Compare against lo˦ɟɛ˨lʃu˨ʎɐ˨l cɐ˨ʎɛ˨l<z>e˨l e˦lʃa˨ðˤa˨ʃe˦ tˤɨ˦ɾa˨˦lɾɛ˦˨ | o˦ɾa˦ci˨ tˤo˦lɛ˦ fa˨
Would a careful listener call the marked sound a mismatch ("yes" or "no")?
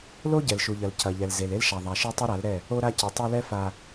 no